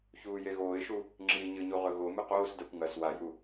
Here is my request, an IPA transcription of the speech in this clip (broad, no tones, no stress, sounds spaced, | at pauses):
ç uː j e ɣ oː ɪ̯ ʃ u | ŋ͡ǁ iː ɲ ɨ ɲ u ʁ ɵ ɣ o m ɨ q oː s d a kʷ ŋ ɐ s w a j u